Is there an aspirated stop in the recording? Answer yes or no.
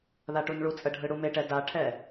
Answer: yes